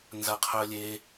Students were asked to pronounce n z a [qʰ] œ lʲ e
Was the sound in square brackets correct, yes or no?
yes